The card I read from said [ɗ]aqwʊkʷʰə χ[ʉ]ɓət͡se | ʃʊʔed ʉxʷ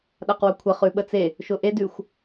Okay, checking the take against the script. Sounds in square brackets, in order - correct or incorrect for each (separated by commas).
correct, correct